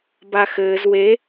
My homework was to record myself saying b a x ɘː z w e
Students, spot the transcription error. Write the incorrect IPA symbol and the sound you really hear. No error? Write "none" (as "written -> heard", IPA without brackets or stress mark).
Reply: none